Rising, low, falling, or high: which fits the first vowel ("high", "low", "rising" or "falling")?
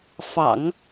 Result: low